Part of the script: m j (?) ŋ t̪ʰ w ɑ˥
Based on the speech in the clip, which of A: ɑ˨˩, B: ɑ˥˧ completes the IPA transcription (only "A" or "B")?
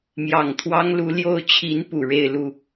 A